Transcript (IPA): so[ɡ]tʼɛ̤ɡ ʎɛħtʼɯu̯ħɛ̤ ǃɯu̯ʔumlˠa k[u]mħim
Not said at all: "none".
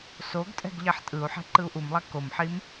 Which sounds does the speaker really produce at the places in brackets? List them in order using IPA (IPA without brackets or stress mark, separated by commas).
ɡ, o